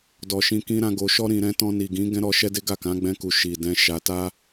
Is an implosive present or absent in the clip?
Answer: absent